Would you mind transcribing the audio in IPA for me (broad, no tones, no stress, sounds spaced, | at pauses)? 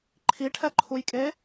ǃʰ i ʈʰ ɛ ǃʰ u j kʼ e